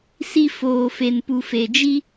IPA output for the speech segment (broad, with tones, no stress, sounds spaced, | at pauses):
s i˨ f oː˨ f e˨ n p u˨ f e˨ d͡ʒ i˦